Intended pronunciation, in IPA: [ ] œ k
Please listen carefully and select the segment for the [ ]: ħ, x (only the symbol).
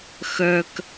x